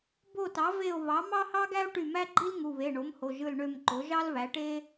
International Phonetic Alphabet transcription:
b o˦˨ t ɑ˩˥ v e˦˨ o̯ β ɑ˩˥ m ɑ˥ h ɑ˥ ɡ æ˥ o̯ ʈ y˦˨ m æ˥ ɡ͡ǃ i˥ l ŋ u˩˧˩ β e˩˧˩ ɳ o˩˥ m h o˩˧˩ ʒ ɯ˦˨ l ɳ ø˦˨ m ǃ o˩˥ ʒ ɑ˥ l β æ˩˥ ʈ e˥

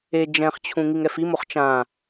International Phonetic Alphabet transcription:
e d͡ʒ ɛ̃ χ t͡ɕʰ ũ ŋ i ŋ ɛ f i m o χ t͡ʃ ã

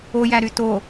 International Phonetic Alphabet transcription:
o j æ ɾ y t o

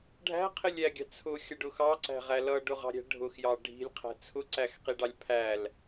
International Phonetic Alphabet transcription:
ɖʱ æ̤ qʰ ɪ lʲ æ ɡʲ ɑ̤ t͡sʰ ʊ xʲ ʌ ɖ ʊ x ɑ ǀ æ̤ ʁ æ l ʌ ɖ ʊ ʁ ɑ̤ ɾʲ æ̤ ɖʱ ʊ x j ɑ ɖʱ i̤ lʲ qʰ æ̤ t͡sʰ ʊ ǀ æ x q i ɖ ɑ lʲ pʰ æ l

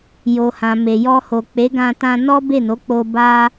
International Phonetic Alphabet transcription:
j o˨ h ã˨ m e˨ j ɔ˧ h o˨ k͡p e˨˦ ɡ ã˧ t ã˧ n ɔ˦ b e˦˨ n o˨˦ k͡p o˧ b a˧

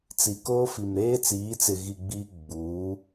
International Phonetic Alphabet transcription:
t͡s i˨ k oː˦ f i˨ m ɾ eː˦ t͡s iː˨˦ t͡s ɪ˨ ɣ i˨ ɡ͡b i˦ ɡ͡b uː˨˦

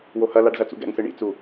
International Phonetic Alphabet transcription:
w o h ɐ l a ɖ z ɐ t͡s ṵ ɡ ɛ̰ ŋ s ɨ ɳ ḭ t͡s u

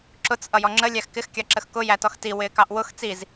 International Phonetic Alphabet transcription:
ǁ ʊ t͡s ʔ ʌ j ɔ ŋ͡ǁ ə lʲ æ x k ɪ x kʲ ɑ ǁ ə x k ʊ j æ t ɔ x t i w ɪː k ɑ ʔ w ʊ x t͡s i z

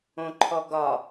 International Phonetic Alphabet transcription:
õ ǃʰ ɔ ɡ ɒ

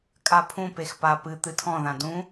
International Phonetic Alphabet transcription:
kʼ a pʰ ũ p e x p a p ɨ t̪ ɨ tʰ ɔ̃ ð ã d ũ

